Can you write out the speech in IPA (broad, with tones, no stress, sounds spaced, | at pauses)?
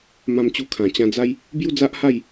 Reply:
m ã˧ m t͡ɕ u˧ kʰ ã˨˩ t͡ɕ ã˧ d͡z a˦ j | b j u˥˧ d͡z a˦ ʔ h a˥˧ j